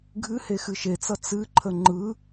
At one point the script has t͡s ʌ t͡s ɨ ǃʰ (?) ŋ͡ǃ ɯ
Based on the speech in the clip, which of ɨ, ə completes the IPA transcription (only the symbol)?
ə